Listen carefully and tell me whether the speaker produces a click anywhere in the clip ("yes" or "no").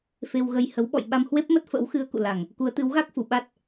no